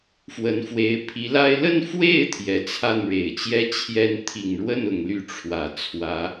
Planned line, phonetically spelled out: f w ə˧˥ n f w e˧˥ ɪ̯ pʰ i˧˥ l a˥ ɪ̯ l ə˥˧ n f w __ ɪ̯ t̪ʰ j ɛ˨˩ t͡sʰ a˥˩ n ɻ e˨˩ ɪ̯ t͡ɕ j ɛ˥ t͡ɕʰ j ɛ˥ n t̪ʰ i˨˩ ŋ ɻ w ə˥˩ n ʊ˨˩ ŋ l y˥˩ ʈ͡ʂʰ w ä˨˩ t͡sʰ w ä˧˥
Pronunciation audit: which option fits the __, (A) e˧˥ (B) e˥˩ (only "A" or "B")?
B